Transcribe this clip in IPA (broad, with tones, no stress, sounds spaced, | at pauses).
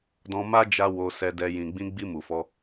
d ɔ̃˧ m a˦ d͡ʒ a˧ w o˧ s ɛ˧ d ɛ˧ j ĩ˨ ɡ͡b ĩ˧ ɡ͡b i˧ m u˨ f ɔ˧